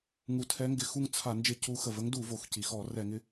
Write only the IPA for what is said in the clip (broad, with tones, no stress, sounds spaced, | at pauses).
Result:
ŋ u˧˩˧ tʰ ɛ˧˥ ŋ ɡ ɪ˧˩˧ x u˦˨ ŋ t͡sʰ a˧˩˧ n d͡ʒ ɪ˦˨ c u˧˥ x ə˩ v ə˧˥ ŋ d u˧˩˧ v o˩ x c i˩ x ɔ˧˩˧ r ɛ˧˩˧ ŋ ɪ˧˥